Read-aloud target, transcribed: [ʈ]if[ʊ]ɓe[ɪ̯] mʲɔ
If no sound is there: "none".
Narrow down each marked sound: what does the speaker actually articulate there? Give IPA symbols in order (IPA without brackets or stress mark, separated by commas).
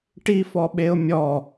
ʈ, ɔ, ʊ̯